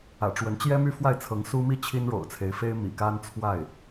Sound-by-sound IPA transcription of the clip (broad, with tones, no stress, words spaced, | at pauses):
ä̰˨˩ʈ͡ʂwə˧˥nt͡ɕjɛ˥ my˥˧fwa˥˩ɪ̯t͡sʰɤ˧˥ŋ su˥mi˥ t͡ɕʰi˥nɻo̰˨˩ʊ̯t͡sʰe˧˥ɪ̯fe˥ɪ̯ mḭ˨˩ka˥nt͡sʰwa˥˩ɪ̯